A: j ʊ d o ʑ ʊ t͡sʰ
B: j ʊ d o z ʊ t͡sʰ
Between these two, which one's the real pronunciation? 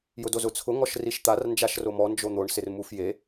B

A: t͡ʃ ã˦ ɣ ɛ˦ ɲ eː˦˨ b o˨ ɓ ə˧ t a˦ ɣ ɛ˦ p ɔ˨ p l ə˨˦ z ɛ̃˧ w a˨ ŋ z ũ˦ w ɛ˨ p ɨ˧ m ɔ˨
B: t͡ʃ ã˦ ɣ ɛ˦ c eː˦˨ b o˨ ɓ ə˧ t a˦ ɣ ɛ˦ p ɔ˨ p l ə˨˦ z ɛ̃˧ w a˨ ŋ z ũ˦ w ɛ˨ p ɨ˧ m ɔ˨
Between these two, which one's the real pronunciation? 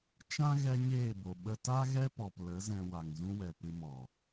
A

